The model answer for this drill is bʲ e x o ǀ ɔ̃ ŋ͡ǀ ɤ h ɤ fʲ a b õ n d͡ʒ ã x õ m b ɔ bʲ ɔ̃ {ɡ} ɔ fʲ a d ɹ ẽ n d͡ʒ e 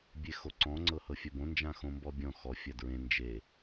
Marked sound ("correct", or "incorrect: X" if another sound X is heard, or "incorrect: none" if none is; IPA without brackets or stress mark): incorrect: x